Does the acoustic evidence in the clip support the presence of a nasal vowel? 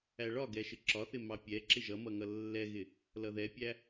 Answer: no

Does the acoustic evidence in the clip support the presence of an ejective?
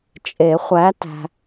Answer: yes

